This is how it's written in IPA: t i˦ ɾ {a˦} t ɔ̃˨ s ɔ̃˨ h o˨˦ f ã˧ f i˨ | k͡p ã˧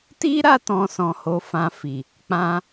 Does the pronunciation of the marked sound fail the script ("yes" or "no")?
yes